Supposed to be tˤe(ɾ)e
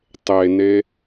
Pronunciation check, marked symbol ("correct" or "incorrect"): incorrect